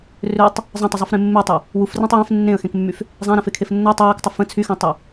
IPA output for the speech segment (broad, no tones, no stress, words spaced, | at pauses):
røtˤ | zˤə̃tˤəzˤufɾẽ mːetˤə | wufrɛ̃tˤ wɛ̃f nːẽə̯xẽkmːyf | zˤãɾãfekʰef nːo tˤawiktˤə fə̃ t͡sʰyxɛ̃tˤɛ